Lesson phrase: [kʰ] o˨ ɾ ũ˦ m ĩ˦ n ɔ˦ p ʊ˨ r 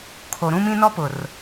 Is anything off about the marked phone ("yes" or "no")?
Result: no